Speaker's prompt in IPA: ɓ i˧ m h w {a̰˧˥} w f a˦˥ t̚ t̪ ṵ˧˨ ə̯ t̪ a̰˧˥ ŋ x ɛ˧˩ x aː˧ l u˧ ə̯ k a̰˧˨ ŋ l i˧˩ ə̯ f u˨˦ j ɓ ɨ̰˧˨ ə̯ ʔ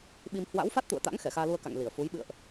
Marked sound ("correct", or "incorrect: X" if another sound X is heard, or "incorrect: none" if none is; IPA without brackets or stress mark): correct